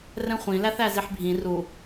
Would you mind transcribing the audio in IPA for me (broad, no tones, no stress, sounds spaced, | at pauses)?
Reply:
r ɛ̃ χʷ ĩ l æ θ æ z i ħ bʱ ĩ r u